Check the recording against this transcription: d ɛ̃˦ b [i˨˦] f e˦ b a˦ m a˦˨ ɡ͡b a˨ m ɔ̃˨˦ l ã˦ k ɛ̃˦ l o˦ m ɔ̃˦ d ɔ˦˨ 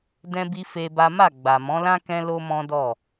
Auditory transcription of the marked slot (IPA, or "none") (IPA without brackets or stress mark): i˦